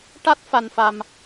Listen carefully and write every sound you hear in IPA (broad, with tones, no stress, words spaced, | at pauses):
ʈa˦˥t̚fa˧nfa˧m